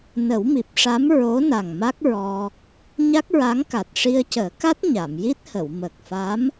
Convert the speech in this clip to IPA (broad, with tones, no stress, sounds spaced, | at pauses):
n ə˨˩˦ w m i˨˩ p̚ ʂ a˧˥ m ɹ o˧˥ n a˨˩ ŋ m a˦˥ k̚ ɹ ɔ˧ | ɲ a˦˥ k̚ ɹ a˧˥ ŋ k a˨˩ t̚ ʂ i˧ ə̯ c əː˨˩˦ k a˦˥ t̚ ɲ a˨˩˨ m j i˦˥ t̚ h ə˨˩˨ w m əː˨˩ k̚ f a˧˥ m